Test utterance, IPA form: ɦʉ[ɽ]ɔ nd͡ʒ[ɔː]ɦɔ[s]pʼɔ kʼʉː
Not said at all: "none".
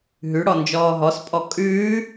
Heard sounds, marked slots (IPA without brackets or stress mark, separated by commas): ɽ, ɔː, s